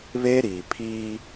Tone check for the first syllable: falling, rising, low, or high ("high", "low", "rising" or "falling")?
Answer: high